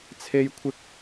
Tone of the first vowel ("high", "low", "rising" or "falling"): high